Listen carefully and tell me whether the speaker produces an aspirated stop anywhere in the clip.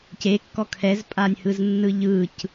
yes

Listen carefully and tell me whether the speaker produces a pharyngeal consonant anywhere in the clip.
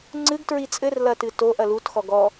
no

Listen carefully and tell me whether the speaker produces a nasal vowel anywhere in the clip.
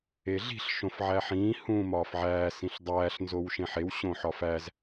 yes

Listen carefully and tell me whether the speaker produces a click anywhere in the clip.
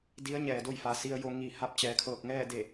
no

